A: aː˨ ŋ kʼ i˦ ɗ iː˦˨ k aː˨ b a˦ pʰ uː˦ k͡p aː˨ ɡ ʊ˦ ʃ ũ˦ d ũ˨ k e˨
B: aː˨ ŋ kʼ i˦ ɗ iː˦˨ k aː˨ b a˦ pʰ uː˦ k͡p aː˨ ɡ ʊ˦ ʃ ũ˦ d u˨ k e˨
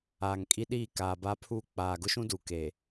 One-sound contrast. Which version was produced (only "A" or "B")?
B